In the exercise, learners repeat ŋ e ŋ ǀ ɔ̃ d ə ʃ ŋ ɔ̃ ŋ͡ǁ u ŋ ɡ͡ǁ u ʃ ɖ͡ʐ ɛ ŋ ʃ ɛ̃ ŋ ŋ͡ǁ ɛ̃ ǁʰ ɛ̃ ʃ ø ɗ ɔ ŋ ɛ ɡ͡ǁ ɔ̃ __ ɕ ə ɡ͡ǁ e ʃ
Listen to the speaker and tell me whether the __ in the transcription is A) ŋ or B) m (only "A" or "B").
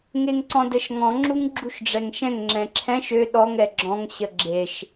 A